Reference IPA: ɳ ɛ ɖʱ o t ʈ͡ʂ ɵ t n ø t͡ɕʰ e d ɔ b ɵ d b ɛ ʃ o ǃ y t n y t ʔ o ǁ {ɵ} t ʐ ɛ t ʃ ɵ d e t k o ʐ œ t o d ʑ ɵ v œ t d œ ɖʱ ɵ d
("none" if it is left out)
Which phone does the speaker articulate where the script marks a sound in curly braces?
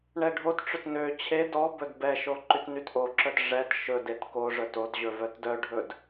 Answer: œ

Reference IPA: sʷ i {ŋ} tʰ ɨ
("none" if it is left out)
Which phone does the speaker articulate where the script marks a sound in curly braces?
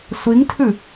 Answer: ŋ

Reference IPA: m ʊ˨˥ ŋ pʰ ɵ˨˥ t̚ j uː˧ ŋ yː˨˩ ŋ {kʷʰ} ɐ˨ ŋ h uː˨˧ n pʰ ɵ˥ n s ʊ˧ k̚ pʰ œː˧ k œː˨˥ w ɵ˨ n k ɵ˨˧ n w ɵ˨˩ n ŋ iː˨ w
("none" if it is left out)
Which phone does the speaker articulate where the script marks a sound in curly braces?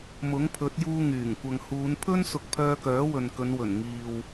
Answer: kʷ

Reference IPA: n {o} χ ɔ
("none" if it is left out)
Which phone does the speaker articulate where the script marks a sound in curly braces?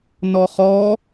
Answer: ɔ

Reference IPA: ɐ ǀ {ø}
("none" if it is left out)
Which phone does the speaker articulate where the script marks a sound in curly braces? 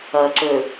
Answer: ø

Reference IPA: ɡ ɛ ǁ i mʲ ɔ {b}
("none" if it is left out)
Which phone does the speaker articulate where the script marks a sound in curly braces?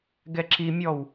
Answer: w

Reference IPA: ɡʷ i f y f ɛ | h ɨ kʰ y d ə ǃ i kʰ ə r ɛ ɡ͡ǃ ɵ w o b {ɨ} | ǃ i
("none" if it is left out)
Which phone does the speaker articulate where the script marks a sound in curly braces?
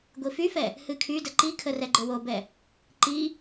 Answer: ɛ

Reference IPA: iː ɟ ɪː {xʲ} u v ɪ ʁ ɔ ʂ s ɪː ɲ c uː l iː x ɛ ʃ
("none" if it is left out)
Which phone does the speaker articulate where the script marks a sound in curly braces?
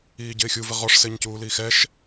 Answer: xʲ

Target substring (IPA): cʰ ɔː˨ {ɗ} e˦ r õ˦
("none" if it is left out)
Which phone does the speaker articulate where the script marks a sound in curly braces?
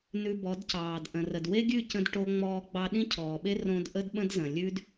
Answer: ɓ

